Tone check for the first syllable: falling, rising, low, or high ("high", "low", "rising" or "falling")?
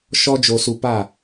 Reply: high